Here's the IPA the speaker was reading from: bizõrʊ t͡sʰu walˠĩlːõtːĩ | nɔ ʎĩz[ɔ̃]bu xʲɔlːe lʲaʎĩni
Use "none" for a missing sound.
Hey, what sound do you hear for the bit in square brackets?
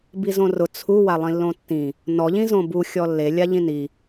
õ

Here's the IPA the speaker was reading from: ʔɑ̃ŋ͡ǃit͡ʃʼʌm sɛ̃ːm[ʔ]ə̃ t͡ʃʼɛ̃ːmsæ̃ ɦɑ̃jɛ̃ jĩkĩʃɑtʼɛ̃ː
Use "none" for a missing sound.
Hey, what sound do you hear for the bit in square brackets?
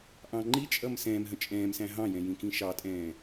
ɦ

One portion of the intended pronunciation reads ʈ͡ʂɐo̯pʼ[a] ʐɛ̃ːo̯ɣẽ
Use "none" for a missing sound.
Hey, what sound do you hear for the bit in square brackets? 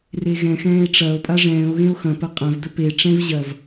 a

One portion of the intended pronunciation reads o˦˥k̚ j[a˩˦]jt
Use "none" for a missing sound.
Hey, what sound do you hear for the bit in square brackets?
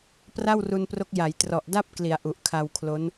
a˩˦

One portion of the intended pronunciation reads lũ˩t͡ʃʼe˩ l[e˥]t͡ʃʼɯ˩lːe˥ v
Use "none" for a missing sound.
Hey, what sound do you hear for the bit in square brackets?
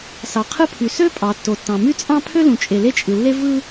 e˥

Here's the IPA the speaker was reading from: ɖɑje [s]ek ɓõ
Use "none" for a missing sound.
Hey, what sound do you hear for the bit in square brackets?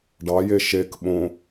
ʃ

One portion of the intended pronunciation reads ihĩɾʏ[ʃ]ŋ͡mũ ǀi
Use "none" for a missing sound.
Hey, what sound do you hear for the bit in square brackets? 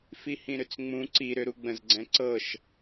t͡s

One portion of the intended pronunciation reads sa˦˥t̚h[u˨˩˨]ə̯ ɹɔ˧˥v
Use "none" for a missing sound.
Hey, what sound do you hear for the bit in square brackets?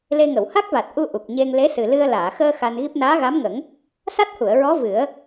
u˨˩˨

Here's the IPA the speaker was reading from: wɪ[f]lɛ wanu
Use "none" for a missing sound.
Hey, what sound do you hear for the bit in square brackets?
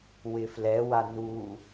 f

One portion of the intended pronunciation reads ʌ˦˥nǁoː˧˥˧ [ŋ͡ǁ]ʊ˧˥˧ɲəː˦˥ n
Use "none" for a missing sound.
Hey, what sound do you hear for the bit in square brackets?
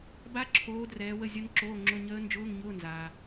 ŋ͡ǁ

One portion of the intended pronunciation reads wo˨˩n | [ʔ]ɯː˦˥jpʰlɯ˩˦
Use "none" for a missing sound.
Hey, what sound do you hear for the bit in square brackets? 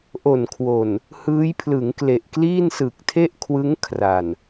h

